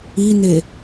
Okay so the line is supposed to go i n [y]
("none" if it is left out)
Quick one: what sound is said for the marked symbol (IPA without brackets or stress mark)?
e